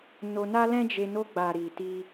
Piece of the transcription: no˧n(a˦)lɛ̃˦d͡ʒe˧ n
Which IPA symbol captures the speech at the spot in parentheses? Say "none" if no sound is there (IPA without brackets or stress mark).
a˦